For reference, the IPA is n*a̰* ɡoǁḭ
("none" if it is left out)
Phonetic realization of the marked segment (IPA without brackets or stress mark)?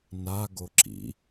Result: a